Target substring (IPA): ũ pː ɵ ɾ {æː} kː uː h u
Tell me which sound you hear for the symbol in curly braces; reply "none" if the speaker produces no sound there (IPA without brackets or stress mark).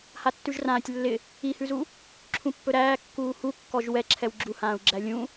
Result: æː